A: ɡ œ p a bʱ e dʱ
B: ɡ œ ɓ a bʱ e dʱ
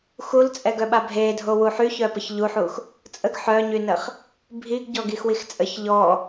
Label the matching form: B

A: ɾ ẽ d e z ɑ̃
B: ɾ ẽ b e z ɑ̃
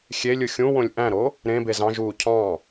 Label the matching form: B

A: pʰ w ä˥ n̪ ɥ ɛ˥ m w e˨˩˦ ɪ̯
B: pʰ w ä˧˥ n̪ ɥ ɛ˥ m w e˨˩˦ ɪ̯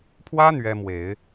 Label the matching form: A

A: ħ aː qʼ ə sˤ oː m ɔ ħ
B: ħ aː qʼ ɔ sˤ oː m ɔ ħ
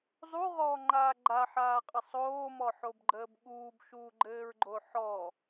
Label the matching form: A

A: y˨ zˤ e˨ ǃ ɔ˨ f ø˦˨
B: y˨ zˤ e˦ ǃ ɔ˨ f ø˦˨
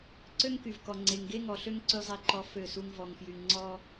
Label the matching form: A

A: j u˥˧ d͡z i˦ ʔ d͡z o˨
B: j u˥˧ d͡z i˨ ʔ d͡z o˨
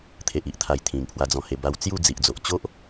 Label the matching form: B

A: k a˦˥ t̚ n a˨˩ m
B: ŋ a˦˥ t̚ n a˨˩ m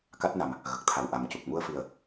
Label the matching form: A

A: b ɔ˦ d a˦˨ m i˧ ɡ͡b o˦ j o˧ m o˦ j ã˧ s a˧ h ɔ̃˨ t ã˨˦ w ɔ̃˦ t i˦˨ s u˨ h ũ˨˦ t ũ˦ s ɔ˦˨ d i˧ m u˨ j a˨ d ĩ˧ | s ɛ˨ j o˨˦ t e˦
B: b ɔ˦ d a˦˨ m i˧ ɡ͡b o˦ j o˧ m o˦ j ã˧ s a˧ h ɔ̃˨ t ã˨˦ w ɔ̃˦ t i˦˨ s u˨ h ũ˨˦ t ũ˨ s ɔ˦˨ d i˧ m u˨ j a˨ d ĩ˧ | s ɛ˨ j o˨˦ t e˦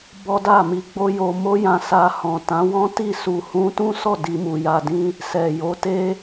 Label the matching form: A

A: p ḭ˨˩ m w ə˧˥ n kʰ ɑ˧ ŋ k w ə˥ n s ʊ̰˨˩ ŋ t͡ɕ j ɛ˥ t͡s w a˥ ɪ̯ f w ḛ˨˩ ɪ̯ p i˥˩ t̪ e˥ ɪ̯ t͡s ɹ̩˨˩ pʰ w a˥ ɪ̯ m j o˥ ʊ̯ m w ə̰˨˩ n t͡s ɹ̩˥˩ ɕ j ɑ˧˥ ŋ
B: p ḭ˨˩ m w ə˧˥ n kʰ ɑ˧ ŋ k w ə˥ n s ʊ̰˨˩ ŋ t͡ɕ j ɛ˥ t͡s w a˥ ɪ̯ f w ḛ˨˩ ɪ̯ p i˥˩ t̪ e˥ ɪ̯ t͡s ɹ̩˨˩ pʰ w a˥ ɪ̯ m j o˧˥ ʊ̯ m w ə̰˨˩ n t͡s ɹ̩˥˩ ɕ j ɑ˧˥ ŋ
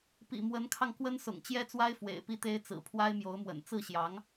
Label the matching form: B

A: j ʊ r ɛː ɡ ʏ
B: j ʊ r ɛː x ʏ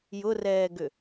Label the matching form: A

